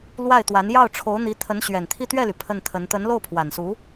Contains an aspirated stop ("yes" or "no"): yes